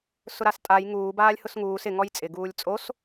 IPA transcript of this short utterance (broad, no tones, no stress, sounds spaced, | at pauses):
s ʊ ɾ a s tʼ a j ŋ uː b aː lʲ h ʊ s ŋ uː s ɪ ŋ ɔ j t͡sʼ ɪ ɡ uː lʲ t͡sʼ o s